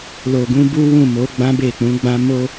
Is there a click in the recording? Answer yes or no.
no